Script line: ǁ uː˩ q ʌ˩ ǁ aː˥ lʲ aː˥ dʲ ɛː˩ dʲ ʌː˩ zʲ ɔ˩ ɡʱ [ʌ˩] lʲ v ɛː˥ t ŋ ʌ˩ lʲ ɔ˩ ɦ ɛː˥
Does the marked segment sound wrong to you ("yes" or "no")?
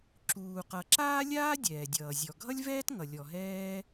yes